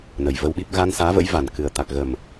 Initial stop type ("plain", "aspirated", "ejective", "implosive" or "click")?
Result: implosive